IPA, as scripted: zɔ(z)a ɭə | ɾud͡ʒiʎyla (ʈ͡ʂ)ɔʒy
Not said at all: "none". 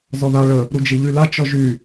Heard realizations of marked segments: ð, t͡ʃ

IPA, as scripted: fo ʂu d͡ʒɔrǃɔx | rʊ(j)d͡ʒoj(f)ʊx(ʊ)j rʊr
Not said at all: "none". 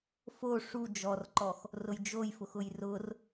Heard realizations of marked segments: j, f, ʊ

